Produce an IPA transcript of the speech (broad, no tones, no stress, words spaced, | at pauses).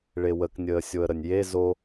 ɭewəknʲəː sʲoə̯ɾənʲje zo